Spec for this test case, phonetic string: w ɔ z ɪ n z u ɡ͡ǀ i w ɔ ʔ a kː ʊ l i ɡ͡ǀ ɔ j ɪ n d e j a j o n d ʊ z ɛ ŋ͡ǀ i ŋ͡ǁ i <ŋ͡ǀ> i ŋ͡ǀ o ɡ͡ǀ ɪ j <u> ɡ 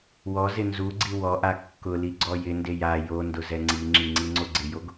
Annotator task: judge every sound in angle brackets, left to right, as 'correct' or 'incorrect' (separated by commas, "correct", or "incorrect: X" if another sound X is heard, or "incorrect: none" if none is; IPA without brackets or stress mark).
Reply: correct, incorrect: o